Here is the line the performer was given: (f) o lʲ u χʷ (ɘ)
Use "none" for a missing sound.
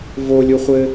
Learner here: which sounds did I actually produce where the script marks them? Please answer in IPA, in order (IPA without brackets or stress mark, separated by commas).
v, ɘ